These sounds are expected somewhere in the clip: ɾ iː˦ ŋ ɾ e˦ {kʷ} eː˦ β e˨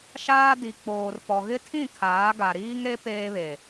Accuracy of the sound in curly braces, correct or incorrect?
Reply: incorrect